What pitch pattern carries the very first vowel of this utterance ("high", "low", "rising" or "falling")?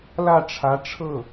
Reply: falling